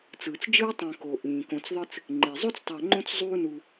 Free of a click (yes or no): no